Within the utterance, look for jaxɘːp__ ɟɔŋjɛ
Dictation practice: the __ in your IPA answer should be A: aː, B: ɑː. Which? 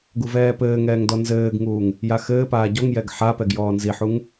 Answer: A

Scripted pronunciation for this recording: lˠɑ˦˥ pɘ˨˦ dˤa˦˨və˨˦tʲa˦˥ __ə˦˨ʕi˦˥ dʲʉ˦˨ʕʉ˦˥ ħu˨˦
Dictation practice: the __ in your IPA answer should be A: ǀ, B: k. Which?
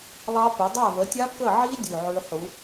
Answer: B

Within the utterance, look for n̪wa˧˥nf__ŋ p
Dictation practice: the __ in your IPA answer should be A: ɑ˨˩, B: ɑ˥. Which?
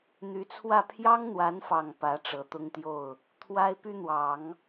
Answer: A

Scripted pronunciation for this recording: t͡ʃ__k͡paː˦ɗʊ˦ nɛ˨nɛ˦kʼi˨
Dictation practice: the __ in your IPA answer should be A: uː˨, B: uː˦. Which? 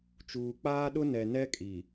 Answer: A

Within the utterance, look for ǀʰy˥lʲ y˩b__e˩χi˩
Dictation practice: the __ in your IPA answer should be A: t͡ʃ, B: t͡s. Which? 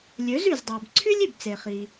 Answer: B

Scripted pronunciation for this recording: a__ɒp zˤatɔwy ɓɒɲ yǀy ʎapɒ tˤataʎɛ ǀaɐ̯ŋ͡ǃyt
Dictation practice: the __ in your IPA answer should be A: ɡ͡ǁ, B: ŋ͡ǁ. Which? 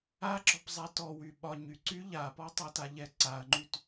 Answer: A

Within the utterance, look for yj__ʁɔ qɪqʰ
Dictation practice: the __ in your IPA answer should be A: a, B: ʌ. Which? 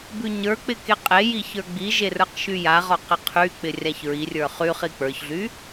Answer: A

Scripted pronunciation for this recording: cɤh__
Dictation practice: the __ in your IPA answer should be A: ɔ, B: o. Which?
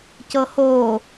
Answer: B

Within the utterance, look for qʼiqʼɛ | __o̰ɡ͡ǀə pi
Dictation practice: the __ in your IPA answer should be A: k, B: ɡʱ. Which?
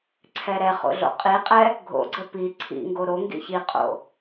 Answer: B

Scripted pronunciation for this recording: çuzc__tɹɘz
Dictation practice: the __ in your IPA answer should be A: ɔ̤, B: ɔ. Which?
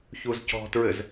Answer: A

